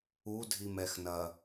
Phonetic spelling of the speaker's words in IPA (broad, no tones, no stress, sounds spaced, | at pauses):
u dʱ i m ɛ x n ɐ